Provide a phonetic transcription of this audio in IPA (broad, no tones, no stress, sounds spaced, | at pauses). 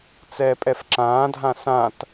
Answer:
t͡s ɛː pʼ ɛ f ǁ ãː dʱ ã s ã t